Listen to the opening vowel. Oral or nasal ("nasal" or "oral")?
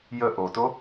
oral